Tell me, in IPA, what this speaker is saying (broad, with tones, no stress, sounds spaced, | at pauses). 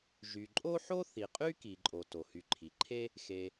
ʒ y˨ ǃʼ o˥ ħ o˥ θ i˩ qʼ y˥ k i˩ ǃʼ o˨ t o˩ h y˨ ǃʰ i˩ ǃʰ e˥ | x e˨